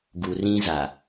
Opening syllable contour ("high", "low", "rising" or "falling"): low